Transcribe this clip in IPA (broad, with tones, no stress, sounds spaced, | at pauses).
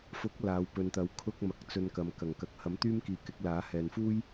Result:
f ʊ˨˥ k̚ l aː˨˧ w p ɵ˧ n t̪ ɐ˧ w kʰ ʊ˥ k̚ m ɐ˨ k̚ t͡s ɵ˧ n k ɐ˧ m k ɐ˨˩ ŋ k ɐ˨˥ k̚ h ɐ˨˥ m t̪ yː˥ m k iː˨˧ k ɪ˨˥ k̚ l aː˨˥ h ɛː˨ n f uː˥ j